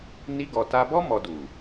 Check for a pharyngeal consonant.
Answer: absent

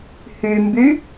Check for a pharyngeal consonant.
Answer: absent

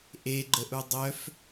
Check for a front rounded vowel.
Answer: present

